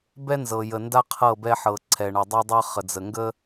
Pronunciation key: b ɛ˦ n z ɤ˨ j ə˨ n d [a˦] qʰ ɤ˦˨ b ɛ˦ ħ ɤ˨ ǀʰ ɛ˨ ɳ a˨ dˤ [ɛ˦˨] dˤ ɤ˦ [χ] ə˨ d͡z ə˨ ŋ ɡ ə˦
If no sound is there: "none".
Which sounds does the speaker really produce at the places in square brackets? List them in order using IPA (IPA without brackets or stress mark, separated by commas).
a˦, ɛ˦, χ